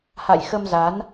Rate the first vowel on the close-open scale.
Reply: open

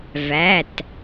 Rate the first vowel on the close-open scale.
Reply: open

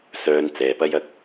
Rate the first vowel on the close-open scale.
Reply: mid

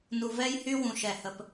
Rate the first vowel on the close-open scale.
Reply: close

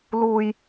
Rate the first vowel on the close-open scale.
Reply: close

